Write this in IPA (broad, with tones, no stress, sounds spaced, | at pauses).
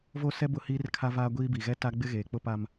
v o˦ s ɛ˦ b ʊ˦ h iː˦ r kʰ a˦ v aː˦ ɡʷ iː˦ b i˨ ɣ ɛ˦ t a˦ ɡ͡b ɪ˦ ɣ eː˨ k͡p ʊ˦ p a˦ m